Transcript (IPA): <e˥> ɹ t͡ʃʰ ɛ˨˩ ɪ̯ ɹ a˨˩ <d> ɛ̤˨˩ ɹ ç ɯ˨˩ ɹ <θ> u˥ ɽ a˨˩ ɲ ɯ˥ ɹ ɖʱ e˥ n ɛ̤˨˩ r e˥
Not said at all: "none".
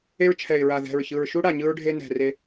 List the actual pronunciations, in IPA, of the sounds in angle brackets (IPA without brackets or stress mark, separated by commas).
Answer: e˥, ð, ʃ